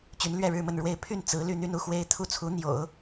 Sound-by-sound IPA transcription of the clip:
t͡ɕ y˧˥ n l ɥ ɛ˥˧ ɻ ɻ̩˥˧ m ə˥˧ n ɻ w e˥˧ ɪ̯ pʰ y˥˩ n t͡s ɹ̩˧˥ l y˥ n̪ y˥ n u˥˩ x w e˥ ɪ̯ t̪ʰ u˥˩ t͡sʰ u˧˥ n̪ j o̰˨˩˦ ʊ̯

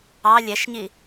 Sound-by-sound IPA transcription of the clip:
ɑ lʲ ɛ ʃ ɲ i

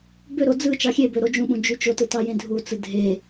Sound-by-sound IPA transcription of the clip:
b ø ɾ o d͡z ɯ t͡ʃ ɑ xʲ e b ø ɾ o d͡ʒ ũ ɓ ũ d͡ʒ y t͡ʃ o t ɯ t ɑ j ẽ dʱ u t͡s ɯ dʱ e

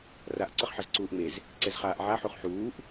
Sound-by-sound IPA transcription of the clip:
r a ʔ ǀ ʌ χ ħ ʌ z ǀ uː ʔ ŋ͡m e z | ǀ ɛ z χ aː ʔ ʕ a ħ u χ ħ uː ʔ

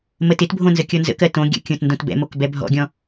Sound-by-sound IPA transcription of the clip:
m ə t ɪ t bʱ õ n z ə kʲ ɔ n z ə̰ k ɜ t õ ɡʲ ə̰ kʲ õ t n d õ t b ɛ̰ m o k b ɛ bʱ ɔ̰ ɡʲ ɔ̃

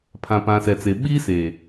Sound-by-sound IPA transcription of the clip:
pʰ ã˨ p ã˨ s ɛ˨ t͡s e˨ ɓ iː˦ s eː˨

